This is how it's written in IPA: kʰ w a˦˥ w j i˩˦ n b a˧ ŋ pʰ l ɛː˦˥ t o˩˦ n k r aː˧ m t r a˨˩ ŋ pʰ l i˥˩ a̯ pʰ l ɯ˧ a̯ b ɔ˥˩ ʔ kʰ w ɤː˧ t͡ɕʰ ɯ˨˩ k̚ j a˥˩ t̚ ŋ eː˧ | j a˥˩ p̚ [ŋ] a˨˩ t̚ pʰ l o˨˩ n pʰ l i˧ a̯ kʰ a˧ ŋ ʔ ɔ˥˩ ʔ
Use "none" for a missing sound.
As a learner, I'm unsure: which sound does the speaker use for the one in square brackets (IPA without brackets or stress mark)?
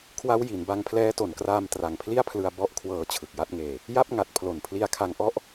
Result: ŋ